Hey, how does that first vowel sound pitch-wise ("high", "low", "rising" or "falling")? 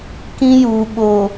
high